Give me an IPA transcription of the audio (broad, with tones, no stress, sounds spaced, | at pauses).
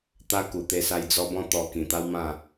t̪ a˦ k u˨˩ t̪ e˧ s a˧ j d͡z ɔ˧ b ɔ̃˥˧ t̪ ɔ˧ k ĩ˨˩ t̪ a˦ w m ã˥˧